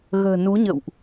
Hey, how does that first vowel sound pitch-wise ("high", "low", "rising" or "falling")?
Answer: low